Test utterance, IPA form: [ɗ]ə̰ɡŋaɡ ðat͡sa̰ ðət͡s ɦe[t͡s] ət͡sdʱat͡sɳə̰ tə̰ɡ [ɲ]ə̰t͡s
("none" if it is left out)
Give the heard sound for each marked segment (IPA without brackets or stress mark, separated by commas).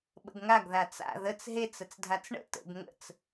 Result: ɓ, t͡s, ŋ